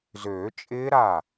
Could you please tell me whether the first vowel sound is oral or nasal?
oral